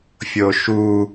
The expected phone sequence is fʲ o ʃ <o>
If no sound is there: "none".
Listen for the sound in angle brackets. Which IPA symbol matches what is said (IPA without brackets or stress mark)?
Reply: u